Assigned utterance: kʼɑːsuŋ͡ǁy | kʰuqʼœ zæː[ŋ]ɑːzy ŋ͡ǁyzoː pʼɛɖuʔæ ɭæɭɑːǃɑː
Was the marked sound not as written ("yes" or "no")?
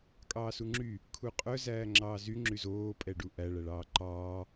yes